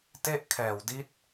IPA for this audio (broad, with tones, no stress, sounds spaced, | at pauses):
t e˥˩ ʔ kʰ ɛː˨˩ w d i˦˥ t̚